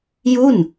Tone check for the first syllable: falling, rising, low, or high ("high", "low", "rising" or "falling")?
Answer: falling